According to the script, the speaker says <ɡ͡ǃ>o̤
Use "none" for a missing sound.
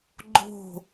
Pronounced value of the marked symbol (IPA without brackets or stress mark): ɡ͡ǃ